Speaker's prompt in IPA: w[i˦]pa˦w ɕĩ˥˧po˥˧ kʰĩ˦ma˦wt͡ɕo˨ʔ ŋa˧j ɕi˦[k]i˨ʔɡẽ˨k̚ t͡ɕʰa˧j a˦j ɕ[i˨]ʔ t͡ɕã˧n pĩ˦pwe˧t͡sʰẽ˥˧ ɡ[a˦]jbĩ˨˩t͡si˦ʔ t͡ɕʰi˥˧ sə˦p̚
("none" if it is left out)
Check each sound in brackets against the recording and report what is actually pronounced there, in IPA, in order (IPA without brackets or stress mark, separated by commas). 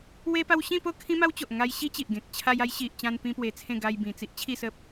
e˦, t͡ɕ, i˨, a˧